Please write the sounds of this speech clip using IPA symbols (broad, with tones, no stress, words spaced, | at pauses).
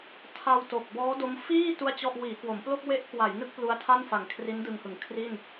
tʰa˧w to˨˩k̚ bɔː˦˥do˦˥m fiː˥˩ tu˥˩a̯t͡ɕɔ˥˩ʔ wiː˩˦kwo˩˦mplo˥˩k̚ we˦˥ʔkwa˩˦j nɯ˥˩k̚ plu˦˥a̯tʰa˥˩nfa˨˩ŋ kʰri˦˥ndɯ˧ŋhɯ˨˩ŋ kʰri˥˩n